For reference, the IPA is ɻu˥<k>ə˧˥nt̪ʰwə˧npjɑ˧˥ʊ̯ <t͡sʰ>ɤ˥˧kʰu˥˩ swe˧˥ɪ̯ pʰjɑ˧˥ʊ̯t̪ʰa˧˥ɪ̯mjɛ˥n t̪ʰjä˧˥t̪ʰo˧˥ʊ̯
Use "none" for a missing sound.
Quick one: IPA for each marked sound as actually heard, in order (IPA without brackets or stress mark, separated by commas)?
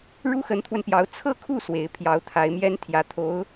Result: x, t͡sʰ